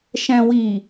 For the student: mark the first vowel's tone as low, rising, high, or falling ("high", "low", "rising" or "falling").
low